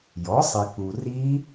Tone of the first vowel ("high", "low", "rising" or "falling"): rising